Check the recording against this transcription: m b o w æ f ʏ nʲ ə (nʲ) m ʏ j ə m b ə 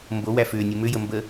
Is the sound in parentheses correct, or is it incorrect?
incorrect